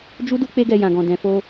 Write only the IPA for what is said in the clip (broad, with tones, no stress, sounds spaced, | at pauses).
d͡ʒ u˦ d u˦ k͡p e˦ ɡ ɛ˧ j ã˨ ɡ ɔ̃˨ d ɛ̃˨ f o˧